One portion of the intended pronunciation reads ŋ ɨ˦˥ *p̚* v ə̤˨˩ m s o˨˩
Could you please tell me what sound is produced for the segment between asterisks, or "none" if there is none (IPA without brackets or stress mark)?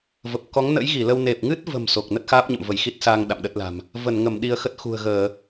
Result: t̚